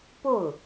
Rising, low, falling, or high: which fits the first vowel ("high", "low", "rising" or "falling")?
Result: falling